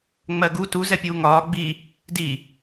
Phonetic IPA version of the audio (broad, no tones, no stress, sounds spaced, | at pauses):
ŋ͡m ɜ ɡ u t u z ɛ pʲ uː ŋ ɒː ɡ͡b i | d i